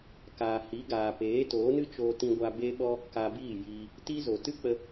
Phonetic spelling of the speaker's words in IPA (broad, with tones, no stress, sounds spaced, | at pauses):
k aː˨ h i˨˦ ɡ aː˨ p eː˨˦ t oː˨˦ n ɨ˦ t͡ʃ oː˧ t ĩ˧ ɡʷ a˧ b e˦ ɓ ɔ˦ | k a˧ b iː˦˨ j iː˧ | t i˦ z o˨ t ɨ˦ k͡p ə˧